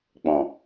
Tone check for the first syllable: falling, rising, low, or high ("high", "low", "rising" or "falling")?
low